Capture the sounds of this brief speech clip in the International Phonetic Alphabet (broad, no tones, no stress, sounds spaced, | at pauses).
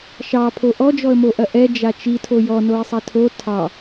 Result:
ʃ ɑ pʰ o ʔ ɔ d͡ʒ ɔ ə̯ m o ʔ ɐ ʔ ɛ d͡ʒ a t͡ʃ i tʰ o j ɔ n o ɪ̯ sˤ ɛ tʰ o tʰ ɑ